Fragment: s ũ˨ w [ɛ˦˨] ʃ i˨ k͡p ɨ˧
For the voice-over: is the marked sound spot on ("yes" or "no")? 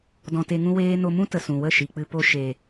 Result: no